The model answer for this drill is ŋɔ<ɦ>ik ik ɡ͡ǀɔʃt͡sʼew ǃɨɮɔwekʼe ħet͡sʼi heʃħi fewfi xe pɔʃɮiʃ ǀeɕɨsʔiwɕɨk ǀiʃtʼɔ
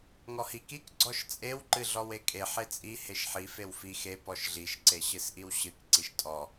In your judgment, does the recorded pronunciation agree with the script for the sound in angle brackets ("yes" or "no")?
no